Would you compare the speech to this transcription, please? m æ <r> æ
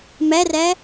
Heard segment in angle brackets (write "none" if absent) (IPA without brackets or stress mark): r